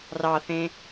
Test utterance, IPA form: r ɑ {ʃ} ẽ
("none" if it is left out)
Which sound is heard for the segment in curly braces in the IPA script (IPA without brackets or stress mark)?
θ